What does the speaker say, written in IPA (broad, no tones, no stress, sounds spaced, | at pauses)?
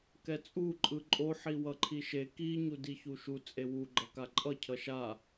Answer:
k ɛ t͡sʼ u ǃʼ ɯ ǃʼ o ħ i w ʌ ǃʰ i ʃ e k i ɲ u d i ç u ʃ u t͡sʼ e w u ɡ͡ǃ ʌ k a ǃʼ ʌ cʰ ʌ ʃ a